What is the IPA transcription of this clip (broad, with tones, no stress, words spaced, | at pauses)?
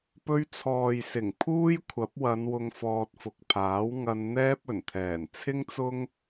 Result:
pɵ˧ɥt͡sʰɔː˨jsɪ˨˩ŋ pʰuː˥jkʷʰɐ˨˥p̚wɐ˨˧n wʊ˧ŋfɔː˧t̚ fʊ˨k̚pʰaː˨˥w ŋɐ˧nn̪ɛː˥p̚ ɵ˨˩nt̪ʰɛː˨˩n t͡sʰɪ˥ŋt͡sʊ˥ŋ